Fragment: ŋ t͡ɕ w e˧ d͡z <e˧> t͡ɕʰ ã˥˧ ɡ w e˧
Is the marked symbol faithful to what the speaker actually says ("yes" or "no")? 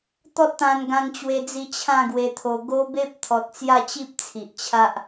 no